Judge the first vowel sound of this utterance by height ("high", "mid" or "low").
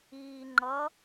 high